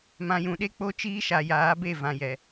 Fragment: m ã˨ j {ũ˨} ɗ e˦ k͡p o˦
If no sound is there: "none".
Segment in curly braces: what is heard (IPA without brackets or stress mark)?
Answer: ũ˨